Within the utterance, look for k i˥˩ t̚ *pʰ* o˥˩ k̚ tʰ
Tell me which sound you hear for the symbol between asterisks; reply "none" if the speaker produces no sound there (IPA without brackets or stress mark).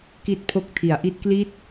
pʰ